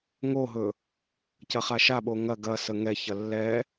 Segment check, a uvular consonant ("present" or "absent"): present